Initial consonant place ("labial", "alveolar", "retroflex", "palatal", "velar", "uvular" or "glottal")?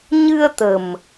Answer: palatal